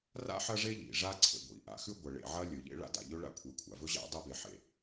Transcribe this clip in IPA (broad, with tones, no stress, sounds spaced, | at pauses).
r a̰˥ ħ ɐ˥ ʐ e˥ ʎ ḭ˩ ʐ a˥ ǀʰ ḛ˩ ɡʷ ḭ˩ ʔ a̰˩ x ʉ˥ ɡʷ ɐ˩ ɭ ḛ˩ ʕ ɐ˥ lʲ ɵ˩ ʎ ḛ˥ ɭ a̰˥ d a̰˩ ʎ ɵ˥ ɭ a̰˥ kʷʰ e˩ kʷʰ a̰˩ v ɵ˥ ʑ a̰˥ dˤ ɐ˥ b e˩ ħ ḛ˩